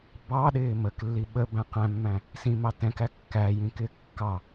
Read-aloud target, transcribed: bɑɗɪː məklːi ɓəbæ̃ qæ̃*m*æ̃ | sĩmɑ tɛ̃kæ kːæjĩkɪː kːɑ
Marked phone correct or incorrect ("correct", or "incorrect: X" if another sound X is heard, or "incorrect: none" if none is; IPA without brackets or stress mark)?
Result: incorrect: mː